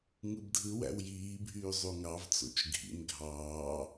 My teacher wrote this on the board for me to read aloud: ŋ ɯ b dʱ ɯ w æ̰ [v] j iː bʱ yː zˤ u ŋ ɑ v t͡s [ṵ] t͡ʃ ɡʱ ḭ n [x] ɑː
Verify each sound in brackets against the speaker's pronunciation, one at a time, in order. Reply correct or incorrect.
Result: incorrect: w, incorrect: o̰, incorrect: ɡʱ

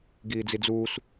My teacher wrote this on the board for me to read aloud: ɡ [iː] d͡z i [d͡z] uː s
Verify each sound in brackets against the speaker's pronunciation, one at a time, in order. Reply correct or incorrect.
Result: correct, correct

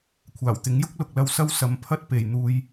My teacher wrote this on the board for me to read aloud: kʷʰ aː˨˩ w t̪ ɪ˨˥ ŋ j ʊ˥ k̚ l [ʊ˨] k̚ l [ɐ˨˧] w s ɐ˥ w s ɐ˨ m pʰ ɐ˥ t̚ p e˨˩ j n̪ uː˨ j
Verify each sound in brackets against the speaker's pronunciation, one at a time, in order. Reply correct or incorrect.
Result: correct, incorrect: ɐ˧

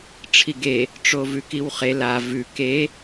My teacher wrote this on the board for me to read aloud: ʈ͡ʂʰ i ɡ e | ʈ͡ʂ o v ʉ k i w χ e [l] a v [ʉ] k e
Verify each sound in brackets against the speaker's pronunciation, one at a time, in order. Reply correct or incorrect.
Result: correct, correct

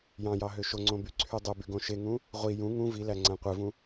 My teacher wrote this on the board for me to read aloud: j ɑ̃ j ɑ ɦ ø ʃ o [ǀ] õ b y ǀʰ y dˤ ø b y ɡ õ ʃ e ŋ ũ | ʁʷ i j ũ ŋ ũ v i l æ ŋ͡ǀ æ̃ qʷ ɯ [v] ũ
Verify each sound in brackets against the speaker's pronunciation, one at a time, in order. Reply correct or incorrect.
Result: incorrect: ŋ͡ǀ, correct

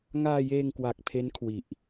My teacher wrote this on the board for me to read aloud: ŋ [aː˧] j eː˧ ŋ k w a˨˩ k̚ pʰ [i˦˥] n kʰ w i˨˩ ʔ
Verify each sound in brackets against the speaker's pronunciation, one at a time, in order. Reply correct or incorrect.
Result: correct, incorrect: e˦˥

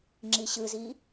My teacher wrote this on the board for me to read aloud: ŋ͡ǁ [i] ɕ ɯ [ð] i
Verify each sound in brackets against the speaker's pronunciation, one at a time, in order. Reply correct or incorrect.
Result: correct, incorrect: z

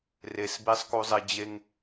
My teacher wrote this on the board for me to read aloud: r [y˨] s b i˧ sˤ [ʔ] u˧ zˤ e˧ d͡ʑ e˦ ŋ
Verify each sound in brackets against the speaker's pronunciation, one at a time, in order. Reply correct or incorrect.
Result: incorrect: e˨, incorrect: k

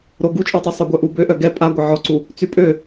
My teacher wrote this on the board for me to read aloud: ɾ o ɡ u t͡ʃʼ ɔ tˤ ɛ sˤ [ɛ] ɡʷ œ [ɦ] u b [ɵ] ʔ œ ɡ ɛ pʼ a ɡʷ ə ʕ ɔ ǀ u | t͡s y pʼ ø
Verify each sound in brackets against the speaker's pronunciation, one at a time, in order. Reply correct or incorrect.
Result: incorrect: œ, incorrect: ʔ, incorrect: ø

